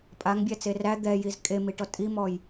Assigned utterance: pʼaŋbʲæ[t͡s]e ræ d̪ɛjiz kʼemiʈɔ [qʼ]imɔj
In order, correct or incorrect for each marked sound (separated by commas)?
correct, incorrect